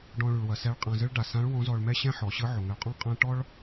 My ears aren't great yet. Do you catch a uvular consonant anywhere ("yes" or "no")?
yes